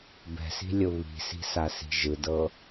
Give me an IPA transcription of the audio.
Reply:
b ɛ̤ s i̤ lʲ ʊ β i̤ s i̤ s a s i̤ ʒ ɯ d ɤ

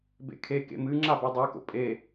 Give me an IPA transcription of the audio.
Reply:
b ḛ kʰ e k ḛ m ɨ ŋ͡ǁ a b e dˤ ʉ k o̰ pʼ e

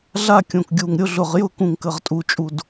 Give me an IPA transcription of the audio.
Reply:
ɮ a˦˨ kʲ õ˨˩ k ɡʲ u˨˩ ŋ ɾʲ ʊ˦˨ ɮ ʊ˨˩ ʁ j ʊ˦˨ k ũ˨˩ ŋ k ə˨˩ ʁ tʼ u˨˩ t͡ʃʼ u˨˩ d

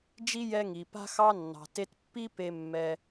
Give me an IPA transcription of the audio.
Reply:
d͡ʒ i˦ j ɛ˧ ŋ i˨ p a̤˦ x ɑ˦ nː ɑ̤˨ t e˧ t pː i˦ p e˧ mː ɛ˧

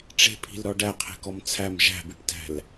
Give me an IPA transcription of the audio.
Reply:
ʈ͡ʂ e̤ pʰ i̤ l ɾ ɔ ɖ æ qʰ e̤ k ɔ m t͡sʰ æ m ʒ æ̤ b i ʈ t æ̤ l

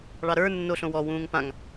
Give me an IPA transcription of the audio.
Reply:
ɭ ɑ ɾ ə˞ nː o ɬ õ w ɔ w ũː ŋ p ã ŋ

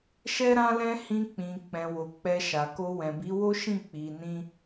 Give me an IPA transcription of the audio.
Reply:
ʃ ɛ˦ ɾ ã˦ l ɛ̃˦ h ĩ˧ k͡p ĩ˨ k͡p ɛ̃˨ w o˨ k͡p ɛ˧ ʃ a˨ k o˧ w ɛ̃˨ b i˨˦ w o˦ ʃ ĩ˦˨ k͡p i˧ n ĩ˦

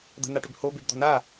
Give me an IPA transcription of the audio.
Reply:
d̪ ə̤ n a ʈ ʏ b h o b e b d̪ ɔ̤ n a

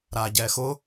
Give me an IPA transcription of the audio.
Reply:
ɾ a ɟ ɛ x ʊ

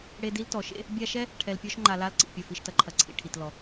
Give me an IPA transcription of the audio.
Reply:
ɽ e˦ d i˥ l t ɔ˩ ʃ ḛ˥ | bʲ a˦ ʃ ɛ˥ | ʈʰ ɛ˨ l pʲ ɔ˦ ʃ ŋ͡ǃ a˨ l a˦ l ǀ ḭ˩ pʲ ɐ˩ f i˩ ʃ t ɐ˨ ǃʰ ɐ˩ ǀʰ ḭ˩ ʈʰ i˩ t l ɔ˩

